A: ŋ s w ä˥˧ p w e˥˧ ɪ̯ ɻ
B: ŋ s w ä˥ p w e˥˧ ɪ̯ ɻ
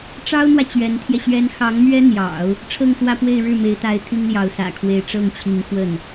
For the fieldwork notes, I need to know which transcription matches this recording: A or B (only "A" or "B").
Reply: A